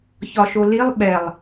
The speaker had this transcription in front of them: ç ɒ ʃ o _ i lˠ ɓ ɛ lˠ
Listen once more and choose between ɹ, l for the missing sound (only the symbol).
l